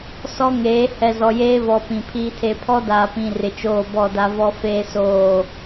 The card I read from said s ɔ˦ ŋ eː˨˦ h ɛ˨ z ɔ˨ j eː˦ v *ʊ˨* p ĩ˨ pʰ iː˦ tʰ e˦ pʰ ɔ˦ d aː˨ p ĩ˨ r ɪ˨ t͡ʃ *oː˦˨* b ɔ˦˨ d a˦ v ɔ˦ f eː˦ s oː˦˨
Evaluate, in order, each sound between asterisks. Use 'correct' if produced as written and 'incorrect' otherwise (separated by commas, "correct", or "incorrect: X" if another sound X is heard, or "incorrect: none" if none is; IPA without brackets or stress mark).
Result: incorrect: ɔ˨, correct